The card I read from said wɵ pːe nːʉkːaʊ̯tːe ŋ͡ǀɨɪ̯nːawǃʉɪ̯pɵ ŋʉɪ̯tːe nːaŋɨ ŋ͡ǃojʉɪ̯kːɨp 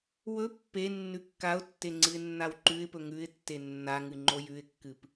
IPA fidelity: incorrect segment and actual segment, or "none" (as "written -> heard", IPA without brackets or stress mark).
none